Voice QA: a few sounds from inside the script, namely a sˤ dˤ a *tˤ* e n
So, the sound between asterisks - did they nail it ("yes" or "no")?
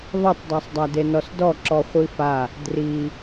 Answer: no